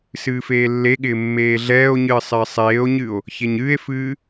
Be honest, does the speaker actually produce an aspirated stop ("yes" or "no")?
no